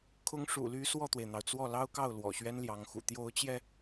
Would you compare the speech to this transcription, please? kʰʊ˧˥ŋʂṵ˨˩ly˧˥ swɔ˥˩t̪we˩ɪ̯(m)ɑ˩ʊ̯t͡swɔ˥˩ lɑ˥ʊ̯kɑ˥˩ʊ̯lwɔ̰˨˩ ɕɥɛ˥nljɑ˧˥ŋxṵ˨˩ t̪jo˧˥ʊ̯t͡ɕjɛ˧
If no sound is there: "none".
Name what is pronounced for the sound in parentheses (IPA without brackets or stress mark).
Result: n̪